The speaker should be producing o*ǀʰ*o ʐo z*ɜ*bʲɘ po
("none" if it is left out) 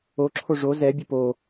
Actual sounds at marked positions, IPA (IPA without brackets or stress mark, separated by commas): ǁʰ, ɛ